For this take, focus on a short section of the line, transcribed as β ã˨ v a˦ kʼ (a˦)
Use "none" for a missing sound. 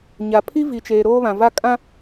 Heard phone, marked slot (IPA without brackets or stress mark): ã˦